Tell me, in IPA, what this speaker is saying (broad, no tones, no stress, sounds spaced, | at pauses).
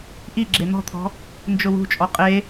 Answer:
ʔ i ɡ͡ǁ e n̪ ɔ̤ t̪ʰ ɔ̤ | n d͡ʒ ʊ w ṳ t͡ʃʼ ɔ qʼ e